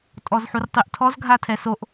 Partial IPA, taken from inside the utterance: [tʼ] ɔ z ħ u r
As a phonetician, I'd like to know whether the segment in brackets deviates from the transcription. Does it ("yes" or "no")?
no